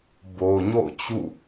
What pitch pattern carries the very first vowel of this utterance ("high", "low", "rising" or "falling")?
low